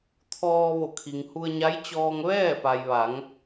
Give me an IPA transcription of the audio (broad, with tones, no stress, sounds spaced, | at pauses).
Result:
t̪ʰ ɔː˧ ʋ o˧˩ kʰ i˩ ŋ h u˧ ə̯ ɲ a˧˥ j t͡ɕ ɔː˧ ŋ ʋ ɛː˥˨ p a˩ j ʋ a˩˧ ŋ